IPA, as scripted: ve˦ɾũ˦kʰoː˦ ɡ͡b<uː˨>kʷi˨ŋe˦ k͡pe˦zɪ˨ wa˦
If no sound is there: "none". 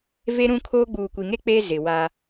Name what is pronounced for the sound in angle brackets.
uː˨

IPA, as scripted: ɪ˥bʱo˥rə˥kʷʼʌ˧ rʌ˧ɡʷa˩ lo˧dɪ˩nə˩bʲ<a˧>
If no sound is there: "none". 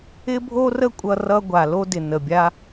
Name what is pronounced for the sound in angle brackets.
a˧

